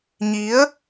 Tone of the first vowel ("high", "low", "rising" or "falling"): rising